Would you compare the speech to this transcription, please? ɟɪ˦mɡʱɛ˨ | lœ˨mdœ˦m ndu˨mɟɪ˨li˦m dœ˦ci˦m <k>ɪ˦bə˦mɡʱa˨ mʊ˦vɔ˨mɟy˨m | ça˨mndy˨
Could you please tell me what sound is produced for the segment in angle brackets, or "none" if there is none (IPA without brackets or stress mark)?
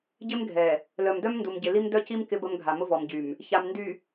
k